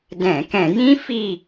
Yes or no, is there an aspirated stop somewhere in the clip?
no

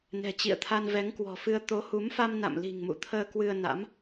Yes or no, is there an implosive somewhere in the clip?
no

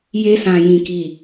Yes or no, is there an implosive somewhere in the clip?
no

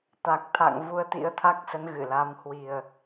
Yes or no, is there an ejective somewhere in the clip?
no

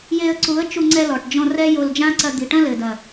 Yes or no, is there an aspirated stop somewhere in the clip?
no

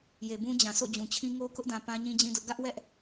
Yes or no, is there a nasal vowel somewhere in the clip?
yes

